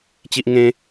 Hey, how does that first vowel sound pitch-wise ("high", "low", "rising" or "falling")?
high